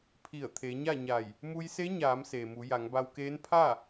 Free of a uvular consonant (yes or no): yes